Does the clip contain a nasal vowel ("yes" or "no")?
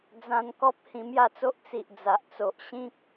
yes